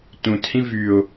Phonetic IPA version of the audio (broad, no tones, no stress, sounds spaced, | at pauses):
t ũ t h ĩ v y ʊ̯